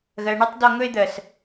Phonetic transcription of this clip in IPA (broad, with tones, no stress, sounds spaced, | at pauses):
ɣ ɜ˨ ɳ o˧ tˤ d ɔ˧ ŋ ɵ˧ e̯ d̪ ɜ˨ s